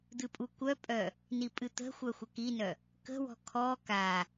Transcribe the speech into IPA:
d̪ ɨ pʼ u kʷ œ pʼ œ | n i pʼ ɨ t̪ ə̤ xʷ œ xʷ ə k i n œ | k ə̤ w ɔ̤ kʰ ɔ k a

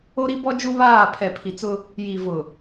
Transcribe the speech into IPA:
o˦ ɾ i˦ b ɔ˦ d͡ʒ u˦ β aː˦˨ pʰ ɛ˨ pʰ i˨ t͡s ʊ˦ | j i˨ v ʊ˨

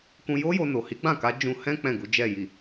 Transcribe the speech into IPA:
k ũ˧ j o˦ j o˧ n o˨ h i˨˦ ɡ͡b ã˦˨ k a˨˦ d͡ʒ ũ˧ h ɛ̃˦ k͡p ɛ̃˦˨ ɡ u˨˦ d͡ʒ ɛ˦˨ j i˨

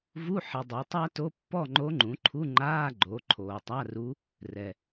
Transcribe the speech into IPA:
v u˧˥˧ ħ ɪ˨ dˤ e˩˥ tˤ a˥ t o˧˥˧ pː ɔ˥˨ ŋ͡ǃ o˧˥ ŋ͡ǃ ũ˩˥ ǃʰ u˧˥˧ ŋ͡ǃ aː˧˥˧ ɡ͡ǃ o˩˥ ǃʰ oː˨ tˤ a˧˥˧ r u˧˥ | r ɛ˨

